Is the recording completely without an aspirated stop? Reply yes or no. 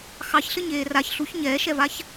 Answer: yes